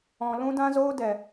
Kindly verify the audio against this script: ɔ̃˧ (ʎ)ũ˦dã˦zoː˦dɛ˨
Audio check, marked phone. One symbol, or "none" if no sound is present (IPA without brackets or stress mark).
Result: l